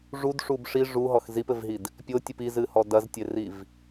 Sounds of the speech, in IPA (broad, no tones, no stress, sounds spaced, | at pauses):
ʐ u d ʂ u b ʂ i ʐ u ɦ ɔ x z i p ɘ v ɦ i d | pʲ o tʲ ɨ p i z ɨ h ɔ d ɐ z tʲ e r i v